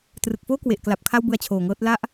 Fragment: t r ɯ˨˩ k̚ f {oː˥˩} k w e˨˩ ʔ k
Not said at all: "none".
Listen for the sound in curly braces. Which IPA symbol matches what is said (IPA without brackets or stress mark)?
oː˥˩